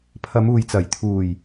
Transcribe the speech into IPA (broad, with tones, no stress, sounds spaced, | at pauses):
pʰ ɐ˨˧ m uː˨ j t͡s ɐ˨˩ j t̪ʰ uː˨˩ j